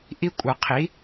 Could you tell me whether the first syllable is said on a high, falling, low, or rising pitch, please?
high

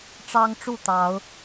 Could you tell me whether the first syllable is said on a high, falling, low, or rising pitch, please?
high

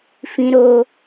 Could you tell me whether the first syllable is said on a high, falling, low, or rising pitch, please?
high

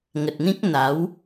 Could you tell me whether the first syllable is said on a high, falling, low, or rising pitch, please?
low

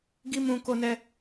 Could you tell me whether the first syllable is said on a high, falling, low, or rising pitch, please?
high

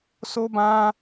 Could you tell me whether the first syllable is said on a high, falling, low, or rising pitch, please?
high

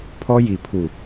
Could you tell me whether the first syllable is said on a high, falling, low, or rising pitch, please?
high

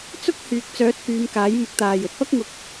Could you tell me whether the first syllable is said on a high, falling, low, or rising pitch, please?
high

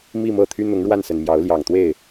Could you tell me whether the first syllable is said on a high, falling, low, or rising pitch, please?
falling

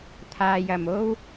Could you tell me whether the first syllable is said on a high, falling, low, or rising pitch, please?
low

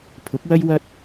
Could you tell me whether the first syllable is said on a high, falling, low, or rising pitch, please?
rising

